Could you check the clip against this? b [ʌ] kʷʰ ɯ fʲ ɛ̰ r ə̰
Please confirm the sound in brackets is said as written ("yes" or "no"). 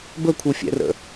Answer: no